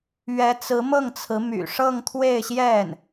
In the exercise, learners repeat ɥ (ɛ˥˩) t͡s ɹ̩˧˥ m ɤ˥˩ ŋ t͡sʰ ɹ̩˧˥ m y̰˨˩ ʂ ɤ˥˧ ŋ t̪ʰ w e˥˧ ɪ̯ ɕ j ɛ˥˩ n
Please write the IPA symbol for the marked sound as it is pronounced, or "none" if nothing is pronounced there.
ɛ˧˥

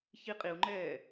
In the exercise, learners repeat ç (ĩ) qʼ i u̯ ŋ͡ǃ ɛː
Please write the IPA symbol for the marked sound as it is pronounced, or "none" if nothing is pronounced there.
i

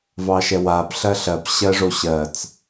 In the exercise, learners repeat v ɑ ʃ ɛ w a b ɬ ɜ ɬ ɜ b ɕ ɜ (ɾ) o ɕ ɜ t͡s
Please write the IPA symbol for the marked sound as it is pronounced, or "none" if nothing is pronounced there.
ʐ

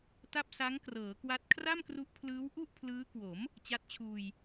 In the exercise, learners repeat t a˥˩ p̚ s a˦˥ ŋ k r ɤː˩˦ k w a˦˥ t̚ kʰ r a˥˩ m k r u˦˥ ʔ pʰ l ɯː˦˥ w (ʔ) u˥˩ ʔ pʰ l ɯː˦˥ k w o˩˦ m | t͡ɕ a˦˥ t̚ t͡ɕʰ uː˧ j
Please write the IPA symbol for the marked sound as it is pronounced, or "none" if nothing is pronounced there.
ʔ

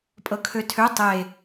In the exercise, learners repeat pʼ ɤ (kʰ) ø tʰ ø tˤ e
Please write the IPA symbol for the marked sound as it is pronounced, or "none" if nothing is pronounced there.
kʰ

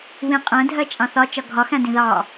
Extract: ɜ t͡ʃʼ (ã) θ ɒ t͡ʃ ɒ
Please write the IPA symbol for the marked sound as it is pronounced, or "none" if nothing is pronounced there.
ɑ̃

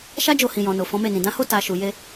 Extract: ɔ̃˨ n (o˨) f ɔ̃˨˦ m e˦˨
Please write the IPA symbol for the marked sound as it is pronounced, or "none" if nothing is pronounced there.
o˨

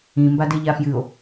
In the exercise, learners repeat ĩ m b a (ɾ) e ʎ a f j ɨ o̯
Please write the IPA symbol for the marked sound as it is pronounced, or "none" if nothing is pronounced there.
d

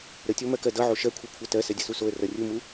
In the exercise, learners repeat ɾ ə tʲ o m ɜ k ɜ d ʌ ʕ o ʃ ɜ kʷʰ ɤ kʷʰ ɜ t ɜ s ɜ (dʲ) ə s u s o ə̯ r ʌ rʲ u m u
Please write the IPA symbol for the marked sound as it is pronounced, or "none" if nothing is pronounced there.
dʲ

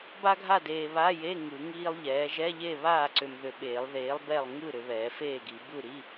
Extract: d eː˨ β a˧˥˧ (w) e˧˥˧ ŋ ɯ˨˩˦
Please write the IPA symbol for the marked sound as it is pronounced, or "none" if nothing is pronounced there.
j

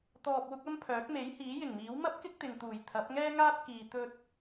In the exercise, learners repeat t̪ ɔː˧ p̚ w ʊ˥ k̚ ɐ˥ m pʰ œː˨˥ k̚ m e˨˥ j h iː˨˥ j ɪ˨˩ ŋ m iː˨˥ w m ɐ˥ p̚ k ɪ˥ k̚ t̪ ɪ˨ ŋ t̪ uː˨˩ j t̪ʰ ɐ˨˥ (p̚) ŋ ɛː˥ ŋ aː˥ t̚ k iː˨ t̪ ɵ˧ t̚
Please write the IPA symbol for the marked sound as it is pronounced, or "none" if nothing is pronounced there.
p̚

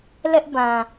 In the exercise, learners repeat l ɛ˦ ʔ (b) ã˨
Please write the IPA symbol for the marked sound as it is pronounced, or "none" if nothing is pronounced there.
b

